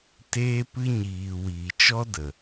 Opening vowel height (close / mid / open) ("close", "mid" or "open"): mid